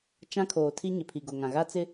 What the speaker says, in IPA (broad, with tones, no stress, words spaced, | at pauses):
t͡ʃã˦kʰoː˨ tʰi˦ɲɪ˨pʰi˨ ɡo˨ŋã˨ ɣa˦t͡sɪ˦